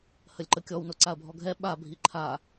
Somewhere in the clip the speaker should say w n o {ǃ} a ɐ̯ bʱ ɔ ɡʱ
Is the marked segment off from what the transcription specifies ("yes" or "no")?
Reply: yes